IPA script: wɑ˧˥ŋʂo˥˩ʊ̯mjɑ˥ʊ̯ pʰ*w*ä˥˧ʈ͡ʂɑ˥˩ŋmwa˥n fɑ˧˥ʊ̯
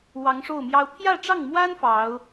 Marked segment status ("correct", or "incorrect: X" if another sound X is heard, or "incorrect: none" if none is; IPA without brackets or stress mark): incorrect: j